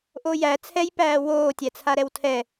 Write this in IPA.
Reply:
ʔ o j æ t͡sʰ ɛ j p æː w oː tʲ æ t͡sʰ a ɾ ɛ w tʰ ɛ

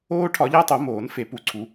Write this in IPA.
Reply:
oː˦ ʈʰ ɒ˨˩˦ ʎ æ˦ tˤ o˨˩˦ m oː˨˩˦ n f e˨˩˦ p u˨˩˦ ǀʰ u˨˩˦

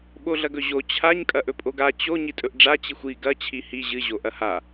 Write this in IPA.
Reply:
ɓ o ɮ ɐ ɡ ɵ ʑ o t͡ɕʰ a ɲ kʼ ɐ ʔ ɵ pʼ o ɡ a t͡ɕ o ɲ i tʼ ɵ ʔ ɖ͡ʐ a t͡ɕ i xʷ i ɡ ɐ t͡ɕʰ i h i ʑ ɨ ʑ o ʔ ɐ h a

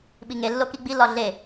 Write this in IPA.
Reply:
ɓ i ŋ e lː o k i ɡ͡b i l ɒ ɮ e

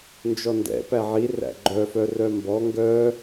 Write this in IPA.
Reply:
n d͡ʒ ɔ n d ɛ̰ p æ ʕ i r æ̰ ɡ͡ǃ œ f œ r œ m b ɔ ŋ ɡ œ

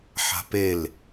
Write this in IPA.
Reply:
ħ a̤ p e l

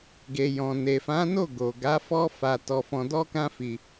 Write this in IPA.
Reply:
ɡ e˨ j ɔ̃˨ n e˨ f ã˨˦ n o˦˨ ɡ o˨ ɡ a˨˦ f ɔ˦ f a˧ t ɔ˧ f ɔ̃˧ d ɔ˦ k ã˦ f i˧

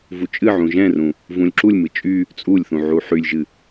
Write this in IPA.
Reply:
v u t͡ʃʼ ɨ ʕ ũ ʒ ɛ̃ r ũ | v ũ lʲ ǁ u lʲ m ɨ t͡ʃʼ y | t͡sʼ u lʲ θ ũ ʕ u ħ y lʲ ʒ ɨ

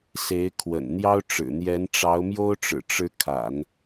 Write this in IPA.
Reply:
s e˧˥ ɪ̯ kʰ w ə̰˨˩ n n̪ j ɑ˥ ʊ̯ ʈ͡ʂ ɻ̩˨˩ n̪ j ɛ˧˥ n ʈ͡ʂ ɑ˧˥ ʊ̯ m j o˥ ʊ̯ ʈ͡ʂ ɻ̩˨˩ ʈ͡ʂ ɻ̩˧˥ kʰ a̰˨˩˦ n

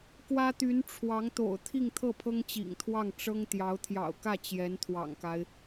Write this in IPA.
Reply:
k w ä˥ t̪ y˧˥ n ʈ͡ʂʰ w ɑ˧˥ ŋ t̪ o̰˨˩ ʊ̯ t̪ʰ i˥˧ ŋ t̪ʰ ɤ˥˩ pʰ ɤ˥ ŋ t͡ɕ ḭ˨˩ ŋ t̪ʰ w ɑ˥˩ ŋ ʈ͡ʂ ɤ˥ ŋ t̪ j ɑ˧˥ ʊ̯ t̪ʰ j ɑ̰˨˩ ʊ̯ k ä˥˩ t͡ɕ j ɛ˧˥ n t̪ʰ w ɑ̰˨˩ ŋ k a˦ ɪ̯

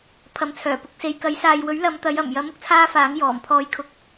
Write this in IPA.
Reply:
pʰ ɐ˨˥ m t͡sʰ œː˨˩ p ʊ˨ k̚ s e˨ j k ɐ˨˥ j s aː˨ j w ɵ˨˥ ɥ l ɐ˨˧ m t̪ ɐ˨˧ j ɐ˨˩ m j ɐ˨˥ m ʊ˥ k̚ t͡sʰ aː˥ f aː˨˥ ŋ j ɔː˨˩ m pʰ ɔː˧ j kʰ ʊ˧ k̚

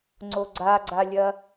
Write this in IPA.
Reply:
ŋ͡ǀ o ɡ͡ǀ a ɡ͡ǀ a lʲ ɐ

